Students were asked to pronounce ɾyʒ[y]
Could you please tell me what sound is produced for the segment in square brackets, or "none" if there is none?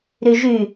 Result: y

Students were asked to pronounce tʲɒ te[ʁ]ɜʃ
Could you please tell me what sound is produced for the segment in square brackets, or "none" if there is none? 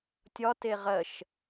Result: ʁ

